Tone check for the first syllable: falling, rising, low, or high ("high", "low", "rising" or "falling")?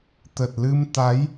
low